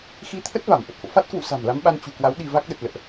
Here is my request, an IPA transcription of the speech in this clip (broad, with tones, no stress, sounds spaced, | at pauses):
x i˨˦ t̪ʰ ə˦˥ t̚ v a˧˩ m ʔ ə˨˩ t̚ f o̰˧˨ f a˦˥ t̚ k w ṵ˧˨ s a̤˨˩ m l a˨˦ m ɓ a˧ n t͡ɕ ṳ˨˩ k w a˨˦ w ɗ i˧ v a˦˥ k̚ ɗ ə˨˩ t̚ l ə̰ː˧˨ ʔ